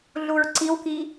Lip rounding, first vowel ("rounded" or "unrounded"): rounded